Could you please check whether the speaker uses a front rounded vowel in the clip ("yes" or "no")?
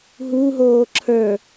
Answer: no